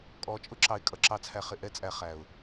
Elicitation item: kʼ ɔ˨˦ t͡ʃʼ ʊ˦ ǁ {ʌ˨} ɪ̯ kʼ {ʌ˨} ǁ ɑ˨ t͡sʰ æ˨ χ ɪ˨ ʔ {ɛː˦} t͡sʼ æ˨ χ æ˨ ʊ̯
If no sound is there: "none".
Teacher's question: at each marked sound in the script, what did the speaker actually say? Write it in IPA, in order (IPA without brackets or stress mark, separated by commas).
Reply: ɑ˨, ʌ˨, ɛ˦